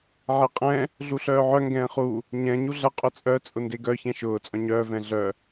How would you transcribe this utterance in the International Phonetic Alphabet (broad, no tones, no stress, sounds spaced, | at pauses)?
ʕ e qʼ ɛ̃ | ɮ u ɬ œː ʕ œ ŋ ɡ ɛ̃ː χ u | ɲ ɛ̃ ɲ u ɮ ɐ qʼ ʊ t͡sʼ œ t͡sʼ ʊ n d e ɡ œ ç ɛ̃ ʃ ʊː t͡sʼ œ̃ ɲ œː v ɛ̃ ɮ œ